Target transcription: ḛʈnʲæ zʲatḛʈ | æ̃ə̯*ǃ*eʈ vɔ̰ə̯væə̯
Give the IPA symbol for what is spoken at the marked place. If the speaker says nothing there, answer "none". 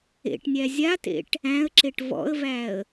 ǁ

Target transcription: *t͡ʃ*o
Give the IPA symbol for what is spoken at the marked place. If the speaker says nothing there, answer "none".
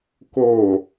k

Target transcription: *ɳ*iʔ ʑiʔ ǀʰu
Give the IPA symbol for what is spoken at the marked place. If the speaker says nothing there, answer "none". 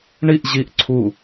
ɳ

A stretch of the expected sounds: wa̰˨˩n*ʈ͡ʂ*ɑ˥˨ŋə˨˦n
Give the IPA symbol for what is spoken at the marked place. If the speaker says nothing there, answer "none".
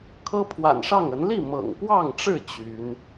ʂ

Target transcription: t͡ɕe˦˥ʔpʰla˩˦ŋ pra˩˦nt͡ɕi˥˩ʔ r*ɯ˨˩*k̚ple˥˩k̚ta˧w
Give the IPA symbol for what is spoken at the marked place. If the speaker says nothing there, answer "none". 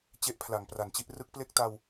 ɯ˦˥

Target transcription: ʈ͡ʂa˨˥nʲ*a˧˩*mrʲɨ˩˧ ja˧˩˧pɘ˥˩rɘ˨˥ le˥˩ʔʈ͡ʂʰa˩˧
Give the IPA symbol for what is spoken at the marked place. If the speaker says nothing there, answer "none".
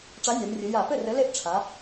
a˩˧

